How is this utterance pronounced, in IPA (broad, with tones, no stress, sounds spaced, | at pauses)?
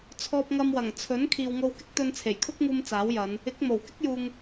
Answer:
t͡sʰ ɔː˧ p̚ ŋ ɐ˧ m w ɐ˨˩ ŋ t͡sʰ ɵ˨˥ n kʰ iː˨ w ŋ o˧ w k ɪ˥ k̚ t̪ ɵ˧ n t͡sʰ e˨˩ j kʰ ʊ˥ k̚ ŋ uː˧ m t͡s aː˨˥ w j ɐ˨˧ n | ɪ˨˥ k̚ m o˨˩ w k ɪ˥ k̚ j uː˨ ŋ